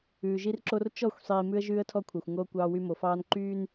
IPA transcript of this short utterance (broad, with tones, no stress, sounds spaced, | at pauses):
ʉː˨ ʒ i˦ r ǁ o˦ r t͡ʃ ɔ˦˨ xʷ sˤ iː˨ m ʉ˦ ə̯ ʒ ʉː˦ ə̯ tʰ ɔ˦ kʷʰ ɑ˨ xʷ ŋ oː˦ kʷ ɑː˦ w y˦ m o˨ f ɑː˦ n ǃ yː˦ n